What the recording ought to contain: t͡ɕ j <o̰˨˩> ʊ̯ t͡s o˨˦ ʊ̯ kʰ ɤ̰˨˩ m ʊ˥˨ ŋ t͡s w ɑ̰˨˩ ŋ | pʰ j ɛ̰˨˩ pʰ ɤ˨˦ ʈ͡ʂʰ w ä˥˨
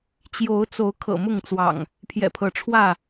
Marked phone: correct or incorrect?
incorrect